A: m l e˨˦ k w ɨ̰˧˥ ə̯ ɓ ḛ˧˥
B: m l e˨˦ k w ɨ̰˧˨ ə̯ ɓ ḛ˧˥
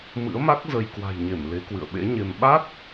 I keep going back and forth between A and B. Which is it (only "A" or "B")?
B